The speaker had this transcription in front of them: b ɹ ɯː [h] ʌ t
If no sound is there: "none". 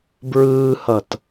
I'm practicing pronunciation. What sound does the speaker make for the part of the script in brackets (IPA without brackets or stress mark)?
h